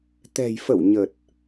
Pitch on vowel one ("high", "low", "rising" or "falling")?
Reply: low